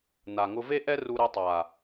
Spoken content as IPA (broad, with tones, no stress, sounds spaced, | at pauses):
n a˨ ŋ ʊ˧ v e˦ ʔ ɛ˦ r u˧ ɾ e˧ tˤ a˨